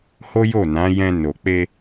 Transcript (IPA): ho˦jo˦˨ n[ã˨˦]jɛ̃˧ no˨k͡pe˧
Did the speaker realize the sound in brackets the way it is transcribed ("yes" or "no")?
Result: yes